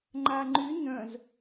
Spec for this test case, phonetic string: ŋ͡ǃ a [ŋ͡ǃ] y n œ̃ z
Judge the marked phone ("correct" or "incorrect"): correct